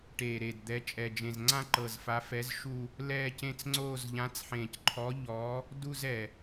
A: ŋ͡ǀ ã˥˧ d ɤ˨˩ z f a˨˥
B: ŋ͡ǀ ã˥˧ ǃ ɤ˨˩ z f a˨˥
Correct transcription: B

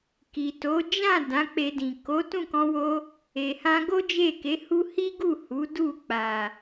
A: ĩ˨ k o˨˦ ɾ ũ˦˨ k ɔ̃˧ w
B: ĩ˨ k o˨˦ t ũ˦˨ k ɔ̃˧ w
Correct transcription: B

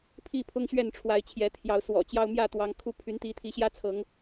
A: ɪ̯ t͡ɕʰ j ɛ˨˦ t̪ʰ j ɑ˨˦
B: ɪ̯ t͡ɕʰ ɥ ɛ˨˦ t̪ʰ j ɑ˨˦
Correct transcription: A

